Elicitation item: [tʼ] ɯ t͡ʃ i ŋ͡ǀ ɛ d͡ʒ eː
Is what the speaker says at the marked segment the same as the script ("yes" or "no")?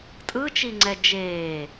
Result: yes